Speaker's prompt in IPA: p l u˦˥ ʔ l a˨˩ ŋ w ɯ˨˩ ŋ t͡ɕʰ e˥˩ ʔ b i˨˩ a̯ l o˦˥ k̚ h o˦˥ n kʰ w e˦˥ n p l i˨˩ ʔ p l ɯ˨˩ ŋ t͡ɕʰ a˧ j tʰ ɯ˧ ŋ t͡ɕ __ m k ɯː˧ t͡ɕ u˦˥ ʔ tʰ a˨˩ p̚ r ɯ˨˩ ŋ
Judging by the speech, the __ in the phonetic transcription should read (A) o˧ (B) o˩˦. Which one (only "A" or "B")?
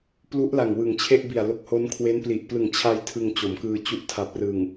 B